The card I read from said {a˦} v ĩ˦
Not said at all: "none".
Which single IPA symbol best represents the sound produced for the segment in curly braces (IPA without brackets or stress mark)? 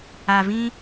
a˨